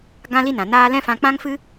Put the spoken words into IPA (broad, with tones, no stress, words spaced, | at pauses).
ɡã˦li˦nã˨naː˦ lɛ̃˦fã˧ k͡pã˦ŋfɨ˦